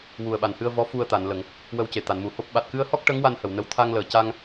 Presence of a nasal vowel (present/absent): absent